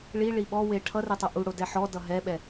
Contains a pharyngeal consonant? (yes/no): yes